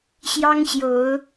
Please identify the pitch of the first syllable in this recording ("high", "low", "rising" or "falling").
high